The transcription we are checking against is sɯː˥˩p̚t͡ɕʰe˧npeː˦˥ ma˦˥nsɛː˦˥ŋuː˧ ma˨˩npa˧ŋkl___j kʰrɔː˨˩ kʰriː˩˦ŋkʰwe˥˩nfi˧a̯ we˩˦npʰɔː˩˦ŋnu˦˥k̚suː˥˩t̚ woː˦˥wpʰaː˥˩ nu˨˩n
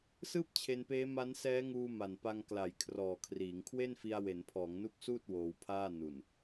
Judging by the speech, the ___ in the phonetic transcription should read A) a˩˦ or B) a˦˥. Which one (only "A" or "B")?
A